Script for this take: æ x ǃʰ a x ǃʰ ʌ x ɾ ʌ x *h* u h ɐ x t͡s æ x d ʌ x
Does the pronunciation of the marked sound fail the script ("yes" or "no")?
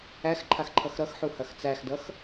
yes